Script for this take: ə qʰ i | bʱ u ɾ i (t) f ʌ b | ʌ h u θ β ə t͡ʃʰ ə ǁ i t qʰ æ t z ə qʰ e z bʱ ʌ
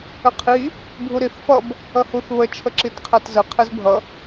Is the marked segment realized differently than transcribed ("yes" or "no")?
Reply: yes